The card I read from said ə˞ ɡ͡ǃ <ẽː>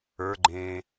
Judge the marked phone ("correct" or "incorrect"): correct